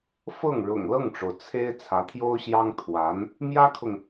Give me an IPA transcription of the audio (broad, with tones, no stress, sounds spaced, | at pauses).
f ɤ˥˩ ŋ ɻ ʊ̰˨˩ ŋ l ɤ˥˩ ŋ ʈ͡ʂ o˩ ʊ̯ t͡sʰ e˥ ɪ̯ t͡sʰ ä˧˥ t̪ʰ j o˥ ʊ̯ ɕ j ɑ˥ ŋ t̪ʰ w a˧˥ n | m j ä˥ kʰ ʊ˨ ŋ